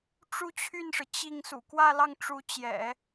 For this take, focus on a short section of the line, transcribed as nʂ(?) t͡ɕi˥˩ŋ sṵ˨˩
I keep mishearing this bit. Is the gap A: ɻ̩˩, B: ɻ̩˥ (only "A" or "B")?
A